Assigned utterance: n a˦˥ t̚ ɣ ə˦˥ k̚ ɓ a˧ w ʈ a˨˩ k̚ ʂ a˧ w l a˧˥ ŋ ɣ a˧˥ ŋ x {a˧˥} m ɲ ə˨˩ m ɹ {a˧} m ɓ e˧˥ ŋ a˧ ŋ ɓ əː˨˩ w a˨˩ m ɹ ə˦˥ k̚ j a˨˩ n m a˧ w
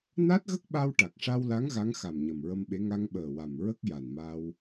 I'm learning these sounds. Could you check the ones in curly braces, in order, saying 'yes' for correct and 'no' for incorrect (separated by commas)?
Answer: no, no